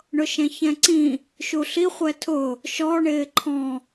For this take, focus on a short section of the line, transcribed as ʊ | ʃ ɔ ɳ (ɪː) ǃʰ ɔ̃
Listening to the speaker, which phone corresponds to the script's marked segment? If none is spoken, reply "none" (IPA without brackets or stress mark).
ɪː